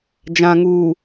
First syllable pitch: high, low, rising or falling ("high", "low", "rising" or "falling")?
low